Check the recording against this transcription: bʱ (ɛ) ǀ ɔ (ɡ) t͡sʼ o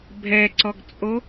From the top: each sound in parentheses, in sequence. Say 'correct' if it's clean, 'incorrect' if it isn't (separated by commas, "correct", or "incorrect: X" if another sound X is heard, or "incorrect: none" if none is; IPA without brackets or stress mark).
correct, correct